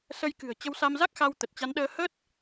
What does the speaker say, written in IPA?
s ə˧ j k ɨ̤˨˩ ə̯ t͡ɕ ə˧ w s a˧ m z a˦˥ k̚ x a˧ w t̪ ə˨˩ t̚ t͡ɕ a˨˦ n ɗ əː˧ h ə˦˥ t̚

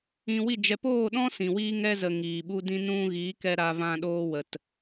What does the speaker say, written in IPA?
ĩ˧ w i˦˨ d͡ʒ ɛ˧ p oː˦˨ ɗ ɔ̃˦ s ĩ˨ w iː˧ ŋ ɛ˧ z ə˨ ŋ iː˨ ɓ u˧ d ĩ˧ n ũ˧ ɣ i˨˦ k ɛ˧ ɾ a˧ v ã˧ ɗ oː˧ w ə˨ t

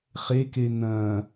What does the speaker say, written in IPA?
χ e k e n̪ ɐ̃

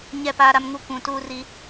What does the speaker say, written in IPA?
ɲ ɛ˦˨ p aː˦ ɾ a˦ m ŋ u˦ kʷ ũ˨ t uː˦ r i˦

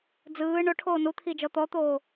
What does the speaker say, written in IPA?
d͡z ɯː ɳ o ʈʰ oː n u t̪ʰ i d͡ʒ ɔ t̪ ɔ t̪ oː

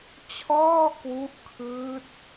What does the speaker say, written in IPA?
t͡ɕʰ ɔː˥˩ k w u˦˥ ʔ kʰ ɯː˦˥ t̚

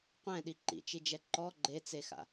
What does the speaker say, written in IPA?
qʷ ɛ̃ ɗ i ǃ ḭ t͡ʃ i d͡ʒ ɛ ǃ ɔ ɡ͡ǃ e t͡s e x a̰

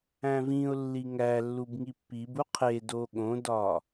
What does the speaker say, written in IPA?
æ̃ v ĩ ʊ̯ lː i ŋ æ lː u b ŋ i pː i b u qʰ e d o ɠ õ d ɒ

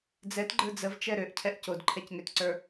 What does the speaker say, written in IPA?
d͡z ɛ t ɡ͡ǃ ə˞ d͡z ə v t͡ʃ ɛ ɾ ø ʔ cʰ ɛ ʔ c o d ǃʰ ɛ c ŋ ø t ǀ ə˞

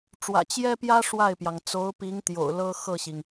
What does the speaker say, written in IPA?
ʈ͡ʂ w ä̰˨˩ t͡ɕ j ɛ˥ p j ä˥ ʂ w a˥˩ ɪ̯ p j ɑ˩ ŋ t͡s o˧˥ ʊ̯ p i˧˥ ŋ t̪ j o̰˨˩ ʊ̯ l ɤ˥ x ɤ˥˩ ɕ i˩ ŋ

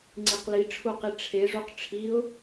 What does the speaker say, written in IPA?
ŋ͡ǀ i q l i ʈ͡ʂʰ u q i ʈ͡ʂʰ e ʐ u q ʈ͡ʂʰ i ʊ̯

